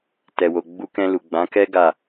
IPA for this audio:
t ɛ˨ w o˨ ɡ͡b u˧ k ɛ̃˧ l u˨ ɡ͡b ã˨˦ k ɛ˦ ɡ a˦˨

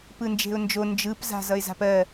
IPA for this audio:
p ɯ n d͡ʒ e̤ ʊ̯ n d͡ʒ o n d͡ʒ ɯ p z a̤ z ʌ ɪ̯ z a̤ p ɜ

